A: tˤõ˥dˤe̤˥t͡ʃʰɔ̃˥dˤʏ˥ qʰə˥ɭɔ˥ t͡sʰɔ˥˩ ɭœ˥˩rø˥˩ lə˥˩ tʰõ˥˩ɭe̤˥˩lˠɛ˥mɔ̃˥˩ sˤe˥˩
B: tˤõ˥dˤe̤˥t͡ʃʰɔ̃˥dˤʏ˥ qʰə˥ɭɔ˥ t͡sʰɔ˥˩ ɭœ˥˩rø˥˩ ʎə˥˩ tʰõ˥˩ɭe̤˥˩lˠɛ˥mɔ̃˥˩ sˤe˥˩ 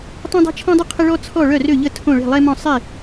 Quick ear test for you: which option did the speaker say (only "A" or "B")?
B